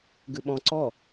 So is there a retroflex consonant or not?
no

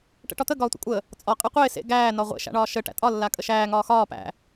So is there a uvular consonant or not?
yes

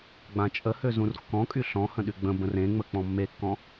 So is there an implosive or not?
yes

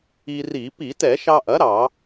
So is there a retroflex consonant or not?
no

